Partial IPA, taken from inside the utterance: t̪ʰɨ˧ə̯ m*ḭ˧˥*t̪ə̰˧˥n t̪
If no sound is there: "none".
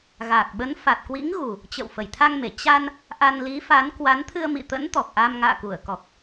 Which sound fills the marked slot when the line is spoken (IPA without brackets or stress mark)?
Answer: ḭ˧˨